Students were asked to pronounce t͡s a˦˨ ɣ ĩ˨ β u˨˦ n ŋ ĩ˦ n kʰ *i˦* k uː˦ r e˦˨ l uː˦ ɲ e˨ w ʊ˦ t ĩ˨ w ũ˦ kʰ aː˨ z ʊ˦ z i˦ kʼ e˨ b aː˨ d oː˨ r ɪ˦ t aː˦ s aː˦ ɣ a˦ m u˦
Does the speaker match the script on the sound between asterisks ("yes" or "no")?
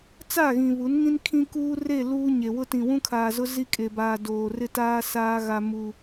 no